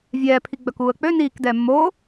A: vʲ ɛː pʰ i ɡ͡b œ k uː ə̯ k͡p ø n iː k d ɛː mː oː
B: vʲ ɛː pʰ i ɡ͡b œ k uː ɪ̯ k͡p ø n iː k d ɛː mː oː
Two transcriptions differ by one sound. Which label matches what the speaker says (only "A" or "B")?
A